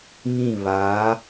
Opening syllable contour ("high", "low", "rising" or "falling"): falling